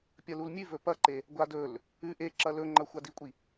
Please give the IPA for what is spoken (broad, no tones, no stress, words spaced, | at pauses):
pʲɐlulmʲʉvɵ pɐǃe | ɡʷadɵl | ʉ ʔeǁɐ lɵŋ͡ǃɐ xʷadikʷʼi